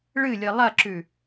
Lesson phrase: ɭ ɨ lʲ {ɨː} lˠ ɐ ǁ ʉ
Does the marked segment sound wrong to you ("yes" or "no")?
yes